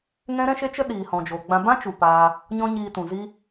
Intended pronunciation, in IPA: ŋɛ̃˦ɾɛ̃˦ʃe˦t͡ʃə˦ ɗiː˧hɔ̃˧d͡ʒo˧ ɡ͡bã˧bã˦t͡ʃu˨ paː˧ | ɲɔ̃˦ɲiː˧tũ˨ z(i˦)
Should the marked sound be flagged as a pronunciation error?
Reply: no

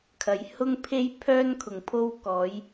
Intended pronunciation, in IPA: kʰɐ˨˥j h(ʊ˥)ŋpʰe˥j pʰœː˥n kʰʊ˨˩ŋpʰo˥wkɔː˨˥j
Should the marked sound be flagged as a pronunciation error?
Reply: no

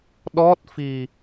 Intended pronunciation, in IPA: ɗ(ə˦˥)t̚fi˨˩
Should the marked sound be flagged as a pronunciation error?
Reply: yes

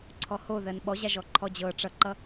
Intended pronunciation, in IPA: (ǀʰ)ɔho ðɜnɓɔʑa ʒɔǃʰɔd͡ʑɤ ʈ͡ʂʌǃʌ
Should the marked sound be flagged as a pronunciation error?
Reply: no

